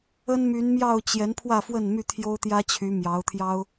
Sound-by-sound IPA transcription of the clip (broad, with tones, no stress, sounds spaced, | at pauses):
ə˦ n m y˨˦ n m j ɑ˥˨ ʊ̯ t͡ɕ j ɛ˨˦ n pʰ w ä˥˨ f w ə˥˨ n m y˥˨ t̪ʰ j o˦ ʊ̯ t̪ j ä˦ t͡ɕʰ y˨˦ m j ɑ˨˦ ʊ̯ t̪ʰ j ɑ˦ ʊ̯